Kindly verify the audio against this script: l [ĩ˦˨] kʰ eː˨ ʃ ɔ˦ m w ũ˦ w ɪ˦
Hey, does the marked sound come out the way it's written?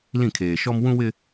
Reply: yes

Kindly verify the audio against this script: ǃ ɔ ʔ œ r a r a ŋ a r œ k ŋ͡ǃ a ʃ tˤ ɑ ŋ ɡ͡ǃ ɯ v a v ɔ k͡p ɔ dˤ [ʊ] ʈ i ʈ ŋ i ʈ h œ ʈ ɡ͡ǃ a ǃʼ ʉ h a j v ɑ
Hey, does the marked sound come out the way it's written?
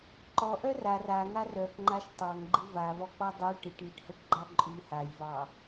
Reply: no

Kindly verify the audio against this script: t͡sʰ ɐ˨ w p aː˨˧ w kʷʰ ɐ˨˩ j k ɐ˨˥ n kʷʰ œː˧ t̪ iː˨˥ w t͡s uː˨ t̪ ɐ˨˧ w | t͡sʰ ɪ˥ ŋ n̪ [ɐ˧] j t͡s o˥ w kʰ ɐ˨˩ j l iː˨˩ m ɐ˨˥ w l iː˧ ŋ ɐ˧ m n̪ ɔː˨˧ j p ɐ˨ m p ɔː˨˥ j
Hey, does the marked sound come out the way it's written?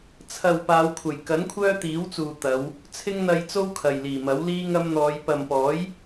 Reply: yes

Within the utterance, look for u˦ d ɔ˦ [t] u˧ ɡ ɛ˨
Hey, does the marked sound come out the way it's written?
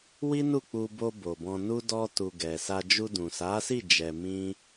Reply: yes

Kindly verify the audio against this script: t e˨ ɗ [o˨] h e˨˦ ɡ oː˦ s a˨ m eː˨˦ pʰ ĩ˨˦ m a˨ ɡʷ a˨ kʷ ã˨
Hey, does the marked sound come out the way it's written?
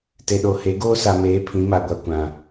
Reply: yes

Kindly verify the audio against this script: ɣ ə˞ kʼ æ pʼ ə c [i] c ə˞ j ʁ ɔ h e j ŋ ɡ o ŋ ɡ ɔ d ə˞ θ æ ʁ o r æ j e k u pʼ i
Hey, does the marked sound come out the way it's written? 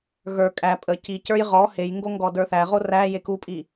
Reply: yes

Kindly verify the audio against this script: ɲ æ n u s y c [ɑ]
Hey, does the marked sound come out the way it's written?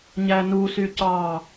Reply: yes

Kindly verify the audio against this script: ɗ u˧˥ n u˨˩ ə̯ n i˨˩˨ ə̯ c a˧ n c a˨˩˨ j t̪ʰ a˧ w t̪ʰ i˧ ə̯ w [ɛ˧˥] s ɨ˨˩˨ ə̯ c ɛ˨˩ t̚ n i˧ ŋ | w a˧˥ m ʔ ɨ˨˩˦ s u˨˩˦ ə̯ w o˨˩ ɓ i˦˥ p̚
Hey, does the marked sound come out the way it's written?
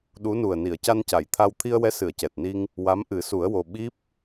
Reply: yes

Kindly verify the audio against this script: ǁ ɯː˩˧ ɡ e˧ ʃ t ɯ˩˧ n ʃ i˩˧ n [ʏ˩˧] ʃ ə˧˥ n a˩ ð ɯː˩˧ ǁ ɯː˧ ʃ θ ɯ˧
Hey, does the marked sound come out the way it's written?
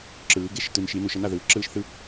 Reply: no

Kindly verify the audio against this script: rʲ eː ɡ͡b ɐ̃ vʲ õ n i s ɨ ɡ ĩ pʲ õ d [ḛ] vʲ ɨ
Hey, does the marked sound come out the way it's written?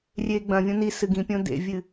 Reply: yes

